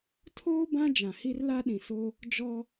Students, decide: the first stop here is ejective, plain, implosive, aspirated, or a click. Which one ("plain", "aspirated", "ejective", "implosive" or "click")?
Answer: aspirated